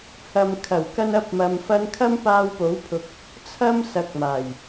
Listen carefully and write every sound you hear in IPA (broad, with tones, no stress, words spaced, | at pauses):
hɐ˨mkʰɐ˨˩w kɐ˧nɐ˧p̚mɐ˨mfɐ˧n kʰɐ˥mpaː˧wpo˨˥w pʰʊ˧k̚ | t͡sʰɐ˥msɐ˨˥k̚maː˨˩j